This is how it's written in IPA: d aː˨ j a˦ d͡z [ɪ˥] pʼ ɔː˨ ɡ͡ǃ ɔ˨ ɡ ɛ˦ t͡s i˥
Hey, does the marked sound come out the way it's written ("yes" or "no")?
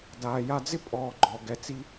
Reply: yes